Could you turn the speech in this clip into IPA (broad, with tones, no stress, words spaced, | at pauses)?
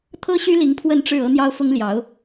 t̪ʰɤ˥ɕy˥li˧˥ŋ pʰwə˥˧nʈ͡ʂɻ̩˥˩ ɤ˥n̪jɑ˥ʊ̯fʊ˥ŋljɑ˧˥ʊ̯